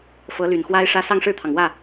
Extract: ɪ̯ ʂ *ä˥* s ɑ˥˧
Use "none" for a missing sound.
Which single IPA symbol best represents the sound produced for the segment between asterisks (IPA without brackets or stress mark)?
ä˥